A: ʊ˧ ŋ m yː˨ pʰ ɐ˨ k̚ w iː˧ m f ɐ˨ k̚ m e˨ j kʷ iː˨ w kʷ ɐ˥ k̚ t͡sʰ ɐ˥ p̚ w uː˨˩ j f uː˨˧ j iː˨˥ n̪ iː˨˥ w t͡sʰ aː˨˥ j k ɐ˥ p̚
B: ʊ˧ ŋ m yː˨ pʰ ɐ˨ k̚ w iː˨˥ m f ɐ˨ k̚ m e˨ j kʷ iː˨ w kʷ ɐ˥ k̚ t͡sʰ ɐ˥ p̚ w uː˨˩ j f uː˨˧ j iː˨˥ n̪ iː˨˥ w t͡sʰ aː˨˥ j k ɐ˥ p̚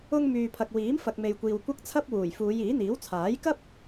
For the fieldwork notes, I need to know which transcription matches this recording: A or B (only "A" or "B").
B